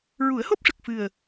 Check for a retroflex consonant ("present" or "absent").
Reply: present